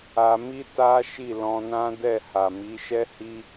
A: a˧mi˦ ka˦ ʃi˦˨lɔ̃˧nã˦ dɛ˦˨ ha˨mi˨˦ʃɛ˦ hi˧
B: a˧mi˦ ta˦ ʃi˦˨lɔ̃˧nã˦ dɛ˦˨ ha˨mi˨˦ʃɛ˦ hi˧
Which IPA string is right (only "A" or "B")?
B